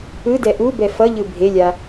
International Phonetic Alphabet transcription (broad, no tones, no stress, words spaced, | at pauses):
ɯdɛ ʔubɛ fʌʎɯ bʱelʲa